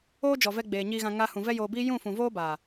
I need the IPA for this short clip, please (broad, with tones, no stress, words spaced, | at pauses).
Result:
oː˦ d͡ʒɔ˨vɛ˧ ɡ͡beː˨ɲiː˧ɣã˧ ŋa˧hũ˨ vɛ˦joː˧biː˦ jũ˦˨fũ˨ voː˦baː˨